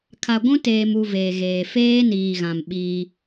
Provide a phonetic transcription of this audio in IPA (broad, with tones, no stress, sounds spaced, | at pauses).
kʰ a˨ ɡʷ ũ˦ t eː˨ m u˨ v eː˨ ɣ eː˨ f eː˦ n iː˨ ɣ ã˨ m ɓ iː˦